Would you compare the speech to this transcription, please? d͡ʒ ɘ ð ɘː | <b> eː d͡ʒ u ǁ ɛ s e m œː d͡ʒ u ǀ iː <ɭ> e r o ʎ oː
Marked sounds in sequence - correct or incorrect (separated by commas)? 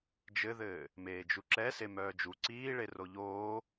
incorrect, correct